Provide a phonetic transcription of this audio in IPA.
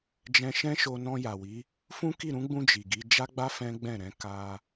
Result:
d͡ʒɛ̃˧ʃɛ̃˦ʃo˧ nɔ̃˧ ja˨wi˨˦ | fũ˦ki˦˨ɾũ˨˦ɡ͡bũ˧ d͡ʒi˨ɡi˨˦ d͡ʒa˦ɡ͡ba˦ fɛ̃˦ɡ͡bɛ̃˦˨ɾɛ̃˨˦ ka˧

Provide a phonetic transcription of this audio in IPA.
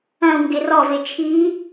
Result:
ɐ̃u̯ ŋɡɪrɔve t͡ʃʰi

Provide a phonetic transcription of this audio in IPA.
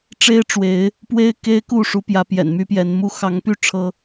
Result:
ʈ͡ʂe˦ɪ̯ʈ͡ʂwe˨˦ɪ̯ | pwe˦ɪ̯ke˦ɪ̯ku˥˨ ʂu˨˦pjä˨˦ pjɛ̰˨˩nmy˦pjɛ˨˦nmu˦ xɑ˨˦ŋpy˥˨ ʈ͡ʂʰɤ˦

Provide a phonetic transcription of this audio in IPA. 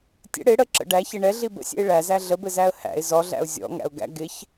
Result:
tʲə̰ ɽɪ ɽəǁə̰ ɖæçɪ ɳɛɮi bə̰sʲɛ̰ɪ̯ ɭæzæ ɮəbɘzæə̯ hæ̰ɪ̯ zɔɮæ̰ʊ̯ zʲɔ̰ŋæ̰ʊ̯ɡæ̰ ɡɪç

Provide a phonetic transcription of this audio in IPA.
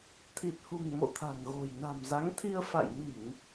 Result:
t̪ʰi˨˩t̚hṳ˨˩ŋ mo̰˧˨t̪ʰa̤˨˩ŋɣo̤˨˩j na̤˨˩mza˨˦ŋt̪ʰi˧ə̯ fa̰˧˨jmi˧˩˨ŋ

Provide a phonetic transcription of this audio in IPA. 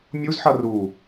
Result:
mʲuzħʌ ru

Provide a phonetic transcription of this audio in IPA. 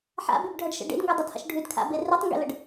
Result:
ħa̰bʉbɖʱʌɖʃə̰ ɖḛdŋɡɵdˤʌdha̰ʃ ɖʱʉdkʰa̰be rʉtˤŋɡḛləɖ

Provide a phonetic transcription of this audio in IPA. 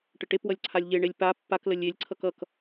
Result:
ʈəʈepwʌlʲ ǀʰalʲʎeɳelʲ pa pːaklə lʲelʲǀʰʌk ʌk

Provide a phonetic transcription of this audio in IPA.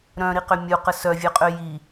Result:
ɾœ̃ɾiqʏ mʲuqə sœvʲœqʼø ji

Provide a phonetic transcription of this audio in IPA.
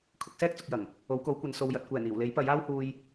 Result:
kʰʊ˨˥k̚sɛː˥k̚t͡sʊ˨k̚jɐ˨˩ŋ | o˨˥wko˨˥wkʷɐ˨˧n so˨wjɐ˨t̚kʷɛː˨˩n iː˨˩wle˨˥jpɐ˨˥j aː˥whuː˧j

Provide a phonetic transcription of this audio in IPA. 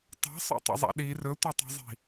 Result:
tˤa̤sˤo̰tˤə̰zˤa̰ ɗi rɵtʷatˤi̤zˤi̤

